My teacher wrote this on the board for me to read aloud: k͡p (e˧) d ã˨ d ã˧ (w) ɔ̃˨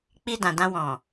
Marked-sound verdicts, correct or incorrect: incorrect: i˧, correct

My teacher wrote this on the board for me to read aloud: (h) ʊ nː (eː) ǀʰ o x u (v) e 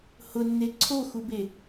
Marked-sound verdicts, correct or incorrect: correct, incorrect: e, incorrect: b

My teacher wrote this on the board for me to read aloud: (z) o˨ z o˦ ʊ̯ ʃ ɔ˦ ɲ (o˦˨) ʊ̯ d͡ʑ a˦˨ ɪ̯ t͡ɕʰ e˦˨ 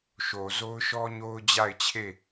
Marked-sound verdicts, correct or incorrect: incorrect: ʃ, incorrect: o˦

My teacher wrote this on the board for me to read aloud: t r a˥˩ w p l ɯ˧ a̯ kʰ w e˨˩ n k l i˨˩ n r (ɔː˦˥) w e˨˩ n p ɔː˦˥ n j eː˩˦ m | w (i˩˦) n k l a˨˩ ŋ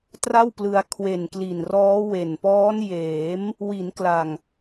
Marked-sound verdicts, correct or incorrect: correct, correct

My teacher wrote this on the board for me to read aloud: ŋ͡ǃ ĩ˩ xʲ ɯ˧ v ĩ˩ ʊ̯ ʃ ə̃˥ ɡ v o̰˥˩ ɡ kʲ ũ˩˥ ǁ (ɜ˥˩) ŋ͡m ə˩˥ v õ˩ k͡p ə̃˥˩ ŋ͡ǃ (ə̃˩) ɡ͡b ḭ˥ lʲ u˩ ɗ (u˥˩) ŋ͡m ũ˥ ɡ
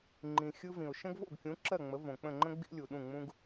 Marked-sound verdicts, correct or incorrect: correct, incorrect: ə̃˥, incorrect: ũ˥˩

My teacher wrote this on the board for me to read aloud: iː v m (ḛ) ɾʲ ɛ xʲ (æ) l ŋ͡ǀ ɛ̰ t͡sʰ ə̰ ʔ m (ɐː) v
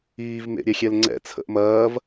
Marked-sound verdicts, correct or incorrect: correct, incorrect: ɛ, correct

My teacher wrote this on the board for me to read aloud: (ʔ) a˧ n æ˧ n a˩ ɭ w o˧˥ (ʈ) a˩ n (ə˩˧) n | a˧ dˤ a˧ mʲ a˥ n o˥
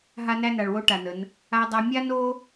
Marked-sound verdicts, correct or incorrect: incorrect: ɦ, correct, correct

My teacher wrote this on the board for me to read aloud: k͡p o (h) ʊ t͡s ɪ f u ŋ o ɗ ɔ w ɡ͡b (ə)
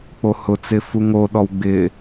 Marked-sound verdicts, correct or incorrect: correct, incorrect: ɪ

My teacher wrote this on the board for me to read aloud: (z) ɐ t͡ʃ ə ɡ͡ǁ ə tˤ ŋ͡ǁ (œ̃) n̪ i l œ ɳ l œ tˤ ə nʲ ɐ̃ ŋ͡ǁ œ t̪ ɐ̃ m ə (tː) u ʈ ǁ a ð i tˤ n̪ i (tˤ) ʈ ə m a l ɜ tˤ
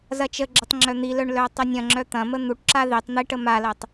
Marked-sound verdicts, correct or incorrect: correct, incorrect: œ, incorrect: n̪, incorrect: none

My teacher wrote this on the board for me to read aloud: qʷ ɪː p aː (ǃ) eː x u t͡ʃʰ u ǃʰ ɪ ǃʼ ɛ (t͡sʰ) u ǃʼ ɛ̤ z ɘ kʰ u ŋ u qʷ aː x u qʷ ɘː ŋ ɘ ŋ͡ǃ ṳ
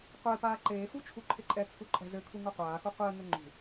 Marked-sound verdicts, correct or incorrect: correct, correct

